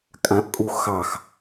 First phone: kʼ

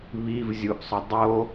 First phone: β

